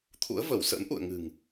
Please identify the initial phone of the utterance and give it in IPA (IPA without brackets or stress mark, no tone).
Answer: t̪ʰ